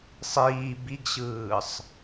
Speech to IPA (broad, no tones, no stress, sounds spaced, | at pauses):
sˤ iː b i ɡ ɕ ɯː sˤ